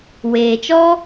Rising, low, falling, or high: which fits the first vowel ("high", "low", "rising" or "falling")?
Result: low